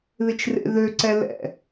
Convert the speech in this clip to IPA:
ð ɪ t͡ʃ r ḛ ð ø ǀ ɛ l ɛ̰

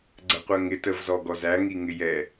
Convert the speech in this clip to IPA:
ɡ͡ǀ ə qʷ ɜ ŋ ɪ t ə v z ɔ ɡ ɔ z æ ŋ i ŋ ɪ j ɛ

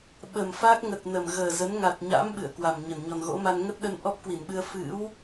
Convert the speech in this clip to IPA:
ɓ ə˨˩ m f a˦˥ k̚ ŋ ə˨˩ t̚ n ə˨˩ m ɣ əː˨˩ z ə˨˦ n ŋ a˨˩ t̚ ɲ a̰˧˥ m ɓ ɨ̰˧˨ ə̯ k w a˨˩ m ɲ ə˧˩ n ɲ ɔ˨˩ n ɣ o̰˧˥ m a˧ n ŋ ə˦˥ t̚ ɗ ə˧ n ʔ ɔ˦˥ p̚ k w i˧˩ n ɓ ɨ˧ ə̯ f ɨ̰˧˥ w

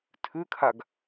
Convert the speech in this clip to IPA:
tʰ ʉ kʰ a ɡ

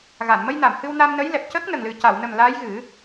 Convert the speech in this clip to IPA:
ɣ a˨˩˨ n m ə˧ j n a˨˩˨ m h ɨ˧ w n a˧ m n ə˧˥ j l ɛ˨˩ p̚ c əː˦˥ k̚ n ə˨˩ ŋ l ɨ˨˩ c a˨˩˨ w n ə˨˩ m l aː˧˥ j ɣ ɨ˨˩˦

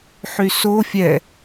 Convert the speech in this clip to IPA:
ħ y s o fʲ ɛ

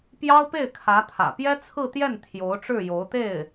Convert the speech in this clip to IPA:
p j ɑ˥ ʊ̯ p e˥˩ ɪ̯ kʰ ä˧˥ t̪ʰ ä̰˨˩ p j ɛ˥ t͡sʰ ɹ̩˥˧ t̪ j ɛ˥˩ n t̪ʰ j o˧˥ ʊ̯ ʈ͡ʂ ɻ̩˥˩ j o˧˥ ʊ̯ t̪ e˥˩ ɪ̯

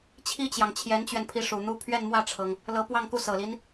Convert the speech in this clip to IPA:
t͡ɕʰ i˥ t͡ɕ j ɑ˨ ŋ t͡ɕʰ j ɛ˧˥ n t͡ɕ ɥ ɛ˧ n pʰ i˧˥ ʂ u˨˩ n̪ u˥ pʰ ɥ ɛ˥˧ n m w ä˥˩ ʈ͡ʂʰ ɤ˩ ŋ | l ɤ˧˥ p w ɑ˥˧ ŋ k u˥˩ s ɤ˨˩ l i˦ n

